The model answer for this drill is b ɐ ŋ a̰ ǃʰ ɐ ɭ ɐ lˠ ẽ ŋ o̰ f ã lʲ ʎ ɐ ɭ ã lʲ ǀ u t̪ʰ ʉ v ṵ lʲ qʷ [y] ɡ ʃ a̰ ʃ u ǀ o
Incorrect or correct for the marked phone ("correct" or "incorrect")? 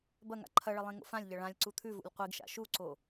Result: incorrect